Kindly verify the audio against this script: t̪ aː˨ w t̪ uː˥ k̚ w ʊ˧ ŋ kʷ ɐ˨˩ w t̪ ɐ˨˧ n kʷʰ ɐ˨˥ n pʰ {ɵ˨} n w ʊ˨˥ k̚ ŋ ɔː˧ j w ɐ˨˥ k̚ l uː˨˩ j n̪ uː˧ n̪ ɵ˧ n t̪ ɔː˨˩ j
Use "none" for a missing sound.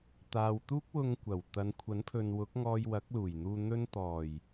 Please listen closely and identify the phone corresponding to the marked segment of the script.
ɵ˨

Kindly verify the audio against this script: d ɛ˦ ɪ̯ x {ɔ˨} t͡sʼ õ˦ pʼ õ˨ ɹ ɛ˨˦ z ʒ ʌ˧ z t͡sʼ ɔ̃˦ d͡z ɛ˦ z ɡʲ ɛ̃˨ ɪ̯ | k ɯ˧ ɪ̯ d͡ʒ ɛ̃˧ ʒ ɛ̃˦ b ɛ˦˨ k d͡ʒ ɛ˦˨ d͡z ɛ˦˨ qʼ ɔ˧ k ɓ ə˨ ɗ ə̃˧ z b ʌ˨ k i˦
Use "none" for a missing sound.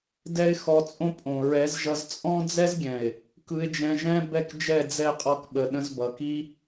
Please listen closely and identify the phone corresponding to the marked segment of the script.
ɔ˧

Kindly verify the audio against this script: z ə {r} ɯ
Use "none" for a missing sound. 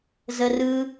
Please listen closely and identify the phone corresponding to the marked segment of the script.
r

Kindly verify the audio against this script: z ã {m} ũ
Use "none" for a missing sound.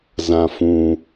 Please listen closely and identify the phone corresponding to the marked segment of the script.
f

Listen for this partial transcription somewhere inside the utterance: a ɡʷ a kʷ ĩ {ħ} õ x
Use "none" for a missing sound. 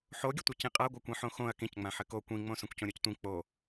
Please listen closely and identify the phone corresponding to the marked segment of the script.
ħ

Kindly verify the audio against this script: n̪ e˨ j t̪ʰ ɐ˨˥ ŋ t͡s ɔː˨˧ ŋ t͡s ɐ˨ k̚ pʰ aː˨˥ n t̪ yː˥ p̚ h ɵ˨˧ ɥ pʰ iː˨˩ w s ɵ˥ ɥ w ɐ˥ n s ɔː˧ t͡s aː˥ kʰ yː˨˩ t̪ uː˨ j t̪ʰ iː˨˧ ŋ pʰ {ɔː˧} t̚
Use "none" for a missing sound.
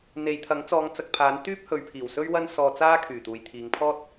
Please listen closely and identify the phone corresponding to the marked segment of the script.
ɔː˥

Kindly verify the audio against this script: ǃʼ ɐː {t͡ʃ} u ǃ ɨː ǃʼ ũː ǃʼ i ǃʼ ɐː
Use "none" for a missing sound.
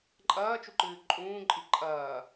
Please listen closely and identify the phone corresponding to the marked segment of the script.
t͡ʃ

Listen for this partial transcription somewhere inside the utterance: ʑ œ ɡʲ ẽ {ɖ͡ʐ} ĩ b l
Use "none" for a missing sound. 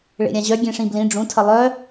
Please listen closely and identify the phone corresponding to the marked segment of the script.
ʂ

